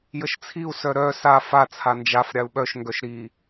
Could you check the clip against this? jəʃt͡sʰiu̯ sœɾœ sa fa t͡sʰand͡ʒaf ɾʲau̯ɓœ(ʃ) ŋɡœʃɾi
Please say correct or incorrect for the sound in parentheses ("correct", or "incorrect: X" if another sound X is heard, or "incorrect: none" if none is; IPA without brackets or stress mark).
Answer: correct